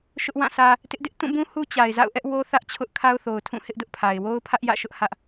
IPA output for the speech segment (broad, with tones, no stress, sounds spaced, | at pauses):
ʃ ʊ˦ ʔ w ã˦˨ s ä˦ | t ɪ˦ ʔ d ɪ˦ ʔ t ũ˦˨ b ũ˦ h u˦ t͡ɕ a˨ ɪ̯ z a̰˦˨ ʊ̯ ʔ ɛ˦ ʔ w o˦ θ ä˦ ʔ t͡ɕʰ ʊ˦ ʔ kʰ a˦ ʊ̯ θ o˨ ʊ̯ tʰ ũ˦˨ h ɪ˦ ʔ d ʊ˦ ʔ pʰ a˨ ɪ̯ w o˦ ʊ̯ pʰ ä˦ ʔ j ä̰˦˨ ʃ ʊ˦ ʔ h ä˦ ʔ